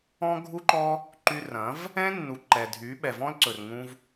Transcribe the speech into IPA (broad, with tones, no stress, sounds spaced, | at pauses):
ɔ̃˦ ɡʱ u˦ ǃ ɔ˦ | ǃ y˧ r ɐ̃˨˦ v | ɛ̃˦ nː u˨ ǃ ɛ˨ dʱ y˨˦ ɓ ɛ˨ v ɔ̃˦ l ǀ ɵ˨ r ŋ ũ˧ v